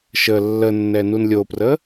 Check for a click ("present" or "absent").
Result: absent